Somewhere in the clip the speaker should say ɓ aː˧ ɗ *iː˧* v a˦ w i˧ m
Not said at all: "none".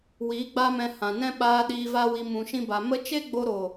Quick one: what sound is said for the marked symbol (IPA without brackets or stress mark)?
iː˧